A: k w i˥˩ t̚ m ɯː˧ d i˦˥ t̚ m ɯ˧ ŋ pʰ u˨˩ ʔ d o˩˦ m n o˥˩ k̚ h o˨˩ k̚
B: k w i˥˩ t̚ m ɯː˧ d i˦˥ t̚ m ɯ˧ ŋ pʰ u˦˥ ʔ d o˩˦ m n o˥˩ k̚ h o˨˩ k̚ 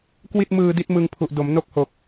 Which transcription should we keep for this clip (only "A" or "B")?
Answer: A